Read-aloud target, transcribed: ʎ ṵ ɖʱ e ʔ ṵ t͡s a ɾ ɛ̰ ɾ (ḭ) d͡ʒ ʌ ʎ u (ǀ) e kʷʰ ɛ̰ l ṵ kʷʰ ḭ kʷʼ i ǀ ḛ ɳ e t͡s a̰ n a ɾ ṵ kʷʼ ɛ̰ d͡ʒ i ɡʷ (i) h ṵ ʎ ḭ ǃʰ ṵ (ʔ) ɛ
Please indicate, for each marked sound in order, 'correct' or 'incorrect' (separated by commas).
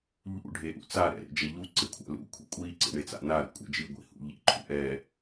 incorrect, correct, incorrect, correct